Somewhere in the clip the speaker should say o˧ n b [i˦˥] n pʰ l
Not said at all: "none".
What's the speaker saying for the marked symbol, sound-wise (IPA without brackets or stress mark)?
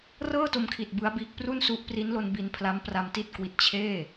i˧